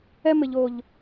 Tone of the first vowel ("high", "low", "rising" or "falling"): high